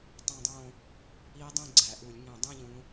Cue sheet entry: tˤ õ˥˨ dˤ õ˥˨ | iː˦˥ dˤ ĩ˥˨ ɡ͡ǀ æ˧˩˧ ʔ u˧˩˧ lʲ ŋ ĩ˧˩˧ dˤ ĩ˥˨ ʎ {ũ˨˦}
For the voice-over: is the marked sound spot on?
yes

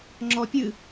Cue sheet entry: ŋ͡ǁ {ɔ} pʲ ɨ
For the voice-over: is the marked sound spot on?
yes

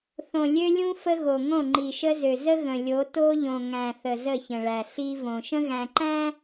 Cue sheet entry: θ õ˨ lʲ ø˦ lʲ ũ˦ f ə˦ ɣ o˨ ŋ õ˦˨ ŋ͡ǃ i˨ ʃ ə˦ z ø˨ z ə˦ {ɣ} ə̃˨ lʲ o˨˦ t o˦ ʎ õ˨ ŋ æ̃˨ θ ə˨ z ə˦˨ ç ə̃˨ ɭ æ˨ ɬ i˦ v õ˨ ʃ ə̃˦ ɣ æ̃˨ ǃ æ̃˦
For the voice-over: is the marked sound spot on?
yes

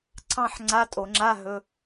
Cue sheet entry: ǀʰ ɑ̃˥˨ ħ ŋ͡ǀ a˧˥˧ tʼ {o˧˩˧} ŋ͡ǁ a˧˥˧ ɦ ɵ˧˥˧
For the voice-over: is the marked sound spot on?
yes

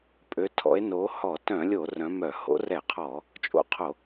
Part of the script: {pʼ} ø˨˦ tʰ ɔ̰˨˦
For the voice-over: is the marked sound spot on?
yes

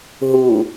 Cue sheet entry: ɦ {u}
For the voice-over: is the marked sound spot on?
yes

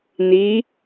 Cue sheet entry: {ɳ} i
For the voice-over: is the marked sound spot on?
no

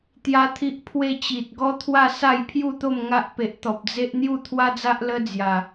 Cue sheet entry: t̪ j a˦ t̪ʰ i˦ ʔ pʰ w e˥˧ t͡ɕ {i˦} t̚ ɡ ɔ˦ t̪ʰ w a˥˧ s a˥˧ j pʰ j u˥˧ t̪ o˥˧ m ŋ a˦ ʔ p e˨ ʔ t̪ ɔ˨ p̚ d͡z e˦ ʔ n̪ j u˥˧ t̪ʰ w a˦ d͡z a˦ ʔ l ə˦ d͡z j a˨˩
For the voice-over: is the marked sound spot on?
no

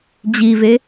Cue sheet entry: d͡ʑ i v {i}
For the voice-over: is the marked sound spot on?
no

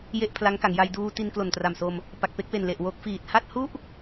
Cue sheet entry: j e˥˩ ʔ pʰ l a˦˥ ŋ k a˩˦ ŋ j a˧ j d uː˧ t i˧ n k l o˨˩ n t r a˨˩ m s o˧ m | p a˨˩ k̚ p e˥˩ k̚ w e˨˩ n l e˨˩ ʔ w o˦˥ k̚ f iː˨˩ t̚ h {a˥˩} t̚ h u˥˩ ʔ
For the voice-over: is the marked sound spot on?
yes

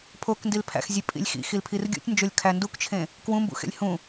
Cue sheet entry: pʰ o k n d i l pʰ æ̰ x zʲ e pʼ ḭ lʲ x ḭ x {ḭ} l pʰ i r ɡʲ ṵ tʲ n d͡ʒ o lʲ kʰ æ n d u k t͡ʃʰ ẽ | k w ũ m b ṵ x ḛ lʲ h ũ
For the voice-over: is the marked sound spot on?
no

